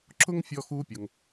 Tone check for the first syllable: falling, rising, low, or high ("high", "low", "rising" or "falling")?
high